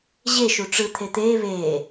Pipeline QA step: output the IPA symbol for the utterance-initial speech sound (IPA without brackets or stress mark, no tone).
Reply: ʑ